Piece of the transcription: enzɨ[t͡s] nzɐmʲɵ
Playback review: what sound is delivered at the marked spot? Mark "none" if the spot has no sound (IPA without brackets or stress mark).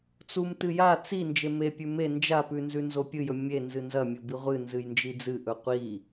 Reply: none